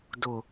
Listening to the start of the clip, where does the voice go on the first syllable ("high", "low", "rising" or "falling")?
low